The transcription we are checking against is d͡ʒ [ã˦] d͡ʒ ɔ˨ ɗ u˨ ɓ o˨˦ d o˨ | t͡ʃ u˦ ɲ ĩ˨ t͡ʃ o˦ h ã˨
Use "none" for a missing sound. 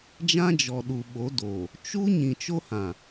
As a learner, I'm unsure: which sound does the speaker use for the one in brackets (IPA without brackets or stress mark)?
ã˦